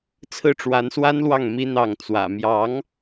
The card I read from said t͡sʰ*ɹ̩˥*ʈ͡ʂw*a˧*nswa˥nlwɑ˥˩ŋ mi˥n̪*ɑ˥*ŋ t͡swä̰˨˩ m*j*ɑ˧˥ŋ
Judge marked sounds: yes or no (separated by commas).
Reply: no, no, no, yes